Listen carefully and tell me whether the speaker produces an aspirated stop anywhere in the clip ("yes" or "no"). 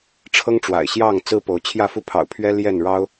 yes